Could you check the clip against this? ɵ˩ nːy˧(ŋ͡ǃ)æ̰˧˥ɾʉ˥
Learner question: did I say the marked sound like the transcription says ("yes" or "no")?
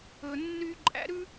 no